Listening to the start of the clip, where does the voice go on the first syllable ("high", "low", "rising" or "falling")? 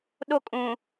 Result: high